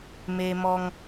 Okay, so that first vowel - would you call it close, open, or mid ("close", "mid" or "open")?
mid